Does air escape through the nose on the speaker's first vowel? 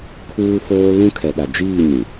no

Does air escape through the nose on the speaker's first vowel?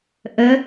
no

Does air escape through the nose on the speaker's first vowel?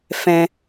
yes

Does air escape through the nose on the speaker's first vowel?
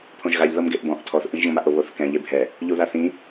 yes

